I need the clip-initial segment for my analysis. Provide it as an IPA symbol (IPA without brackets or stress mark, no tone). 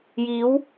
j